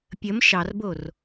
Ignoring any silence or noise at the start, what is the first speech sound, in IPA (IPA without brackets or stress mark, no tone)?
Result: pʲ